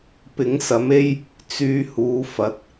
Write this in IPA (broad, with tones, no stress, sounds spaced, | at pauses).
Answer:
p ɪ˨˥ ŋ s ɐ˨˥ m e˥ j | t͡s yː˧ h uː˨˧ f ɐ˨˥ t̚